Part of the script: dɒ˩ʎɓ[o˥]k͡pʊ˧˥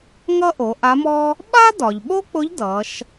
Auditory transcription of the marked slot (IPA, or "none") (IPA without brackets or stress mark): o˥